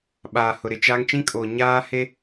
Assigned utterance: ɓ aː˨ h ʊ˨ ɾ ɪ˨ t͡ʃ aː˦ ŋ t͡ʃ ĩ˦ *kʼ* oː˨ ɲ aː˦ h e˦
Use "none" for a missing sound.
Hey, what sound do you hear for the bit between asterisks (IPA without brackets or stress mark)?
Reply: kʼ